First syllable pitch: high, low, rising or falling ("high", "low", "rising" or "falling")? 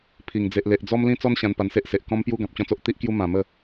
low